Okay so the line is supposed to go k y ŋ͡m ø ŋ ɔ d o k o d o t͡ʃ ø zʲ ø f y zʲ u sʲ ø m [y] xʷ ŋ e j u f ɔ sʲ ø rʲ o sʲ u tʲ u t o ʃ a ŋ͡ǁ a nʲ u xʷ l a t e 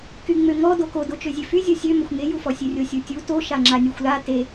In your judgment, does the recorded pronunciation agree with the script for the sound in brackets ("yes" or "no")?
no